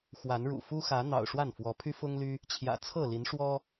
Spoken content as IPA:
x w a˨˦ n ɻ ṵ˨˩ f u˦ x ä˨˦ n̪ ɑ̰˨˩ ʊ̯ ʂ w a˥˨ n f w ɔ˨˦ pʰ y˦ f ʊ˦ ŋ l y˦ | t͡ɕʰ j ä̰˨˩ t͡sʰ ɤ˥˨ l i˨˦ n ʂ w ɔ˦

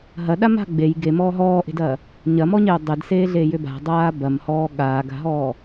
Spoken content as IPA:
ɦ ɐ ɗ a m a̤ ɡ͡b e j ɡ e m ɔː ɦ ɔː ʔ e̤ d ɐː | ɲ ɐ m ɔ ɲ e o̯ dˤ e d s eː ɮ eː j ʏ b a̤ dˤ aː b ɐ m h ɔː ɠ aː ɡ a̤ ɦ ɔː

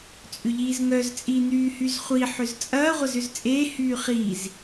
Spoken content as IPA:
t͡sʼ ʏ ʎ iː z ŋ œ z t͡sʼ iː n̪ yː h y z χʷ i ħ ʏ z t͡sʼ ɐː ʁʷ ɐ z ʏ z t͡sʼ eː h yː χ iː z

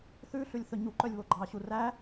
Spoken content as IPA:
θ ʉ ɬ ʉ lʲ θ ɵ ɲ u ǃ œ lʲ β o ɡ͡ǃ ɑ ɕ u r æ

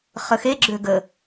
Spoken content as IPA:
χ ə x e ɡ͡ǁ ø ɡ ə

